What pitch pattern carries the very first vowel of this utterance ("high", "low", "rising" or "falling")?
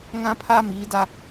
high